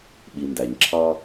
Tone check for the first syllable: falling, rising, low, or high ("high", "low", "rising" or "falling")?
low